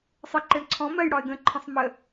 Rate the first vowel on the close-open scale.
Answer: mid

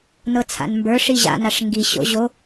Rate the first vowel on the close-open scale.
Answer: mid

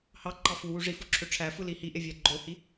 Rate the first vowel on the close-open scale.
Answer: open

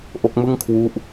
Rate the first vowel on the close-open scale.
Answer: mid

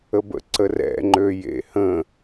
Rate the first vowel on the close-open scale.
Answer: mid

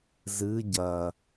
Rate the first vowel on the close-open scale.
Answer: close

